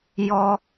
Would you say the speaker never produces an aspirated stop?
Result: yes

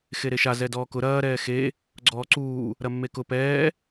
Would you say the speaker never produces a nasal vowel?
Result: yes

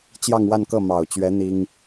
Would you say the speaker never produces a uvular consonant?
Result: yes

